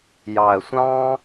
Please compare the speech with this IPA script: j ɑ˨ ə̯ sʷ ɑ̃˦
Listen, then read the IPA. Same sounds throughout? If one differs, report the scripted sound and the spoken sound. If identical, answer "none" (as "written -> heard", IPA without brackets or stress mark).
none